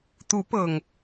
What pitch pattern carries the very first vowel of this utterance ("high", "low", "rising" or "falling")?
rising